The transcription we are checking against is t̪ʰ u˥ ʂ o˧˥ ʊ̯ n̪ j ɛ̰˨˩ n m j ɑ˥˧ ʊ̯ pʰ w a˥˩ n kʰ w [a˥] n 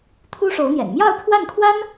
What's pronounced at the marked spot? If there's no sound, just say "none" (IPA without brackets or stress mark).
a˥